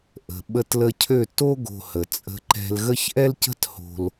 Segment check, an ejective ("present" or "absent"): present